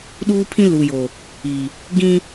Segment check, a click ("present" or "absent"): absent